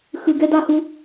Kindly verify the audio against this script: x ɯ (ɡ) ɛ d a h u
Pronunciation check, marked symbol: correct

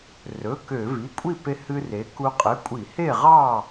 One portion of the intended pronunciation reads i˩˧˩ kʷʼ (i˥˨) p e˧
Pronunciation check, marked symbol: correct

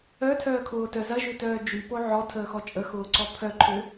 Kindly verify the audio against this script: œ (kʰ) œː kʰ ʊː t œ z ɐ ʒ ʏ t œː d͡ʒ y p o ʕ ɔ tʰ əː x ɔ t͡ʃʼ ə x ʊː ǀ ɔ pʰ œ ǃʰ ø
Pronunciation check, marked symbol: incorrect: tʰ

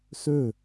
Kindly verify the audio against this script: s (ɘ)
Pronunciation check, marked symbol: incorrect: ø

